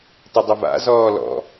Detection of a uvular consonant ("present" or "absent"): absent